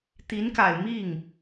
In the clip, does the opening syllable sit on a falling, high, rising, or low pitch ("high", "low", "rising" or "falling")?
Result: rising